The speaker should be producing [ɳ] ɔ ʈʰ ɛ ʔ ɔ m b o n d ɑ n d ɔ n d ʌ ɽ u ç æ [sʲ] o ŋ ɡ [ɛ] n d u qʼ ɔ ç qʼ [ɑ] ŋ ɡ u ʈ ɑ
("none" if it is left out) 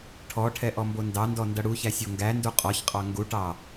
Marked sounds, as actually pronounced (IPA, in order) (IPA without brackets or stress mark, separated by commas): ʈʰ, sʲ, æ, ɑ